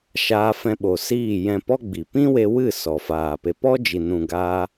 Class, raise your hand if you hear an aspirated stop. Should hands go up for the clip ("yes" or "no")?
no